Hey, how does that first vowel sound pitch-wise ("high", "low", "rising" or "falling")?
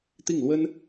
falling